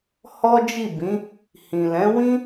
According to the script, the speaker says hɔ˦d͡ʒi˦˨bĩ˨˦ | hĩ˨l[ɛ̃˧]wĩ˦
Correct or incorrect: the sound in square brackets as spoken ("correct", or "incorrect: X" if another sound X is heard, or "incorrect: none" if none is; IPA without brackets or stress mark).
incorrect: ɛ̃˨˦